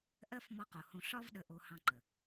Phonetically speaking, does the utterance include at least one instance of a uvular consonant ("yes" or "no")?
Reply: yes